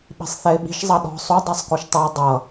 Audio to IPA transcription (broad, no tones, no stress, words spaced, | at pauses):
ɓi̤sˤθɛɪ̯ɓi̤ʃ zˤɑɗɔ̤ sˤu dˤɛsˤkoʃtˤʌɪ̯ dˤʌ